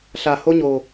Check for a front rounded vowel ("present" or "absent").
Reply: absent